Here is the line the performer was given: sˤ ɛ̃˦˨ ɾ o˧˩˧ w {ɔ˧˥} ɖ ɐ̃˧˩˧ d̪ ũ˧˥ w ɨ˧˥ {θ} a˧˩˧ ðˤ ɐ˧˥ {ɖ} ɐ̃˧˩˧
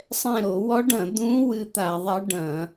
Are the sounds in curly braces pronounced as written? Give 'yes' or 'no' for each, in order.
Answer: yes, no, yes

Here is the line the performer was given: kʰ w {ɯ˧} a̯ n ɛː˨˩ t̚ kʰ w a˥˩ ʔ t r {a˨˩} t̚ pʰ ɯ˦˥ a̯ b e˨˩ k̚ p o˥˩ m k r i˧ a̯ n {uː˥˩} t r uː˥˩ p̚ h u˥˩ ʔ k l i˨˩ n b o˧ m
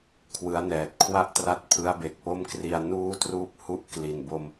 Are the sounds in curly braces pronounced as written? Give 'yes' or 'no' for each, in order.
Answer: no, no, yes

